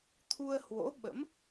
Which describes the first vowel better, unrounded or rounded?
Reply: rounded